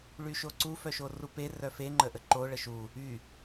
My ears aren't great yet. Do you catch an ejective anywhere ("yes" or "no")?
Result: no